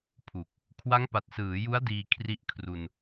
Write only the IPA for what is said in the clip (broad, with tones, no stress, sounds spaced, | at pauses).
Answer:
pʰ u˨˩ k̚ | kʰ w a˦˥ ŋ p a˨˩ t̚ s ɯː˩˦ j u˦˥ a̯ d iː˧ kʰ r i˦˥ ʔ kʰ r u˧ n